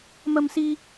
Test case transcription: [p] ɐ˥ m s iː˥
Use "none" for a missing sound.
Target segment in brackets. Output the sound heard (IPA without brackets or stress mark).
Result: m